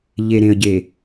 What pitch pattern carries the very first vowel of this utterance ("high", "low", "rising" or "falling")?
low